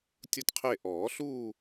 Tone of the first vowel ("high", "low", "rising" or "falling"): falling